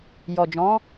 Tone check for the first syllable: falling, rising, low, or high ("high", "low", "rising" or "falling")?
low